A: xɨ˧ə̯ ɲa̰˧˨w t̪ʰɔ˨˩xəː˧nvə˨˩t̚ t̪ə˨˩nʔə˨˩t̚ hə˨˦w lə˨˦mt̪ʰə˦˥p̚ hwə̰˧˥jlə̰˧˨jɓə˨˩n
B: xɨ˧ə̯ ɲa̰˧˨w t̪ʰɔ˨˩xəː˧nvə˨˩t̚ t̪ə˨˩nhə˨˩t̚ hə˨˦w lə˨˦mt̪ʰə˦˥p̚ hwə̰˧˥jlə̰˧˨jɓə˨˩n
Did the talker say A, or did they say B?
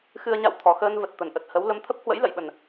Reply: A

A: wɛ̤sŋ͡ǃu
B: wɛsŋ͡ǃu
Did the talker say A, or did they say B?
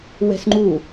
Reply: A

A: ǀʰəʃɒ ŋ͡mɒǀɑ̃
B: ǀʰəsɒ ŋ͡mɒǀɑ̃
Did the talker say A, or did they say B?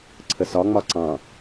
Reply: B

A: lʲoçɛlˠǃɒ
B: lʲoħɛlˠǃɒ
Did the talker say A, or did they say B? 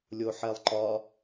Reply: B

